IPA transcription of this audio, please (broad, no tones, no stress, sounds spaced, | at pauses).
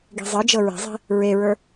ɡ i̤ zˤ ɤ d͡ʒ ɤ ɹ e̤ zˤ i̤ | ɹ e ɹ ə˞